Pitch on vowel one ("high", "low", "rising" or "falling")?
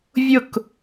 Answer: falling